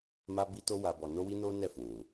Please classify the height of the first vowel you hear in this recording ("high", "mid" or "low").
low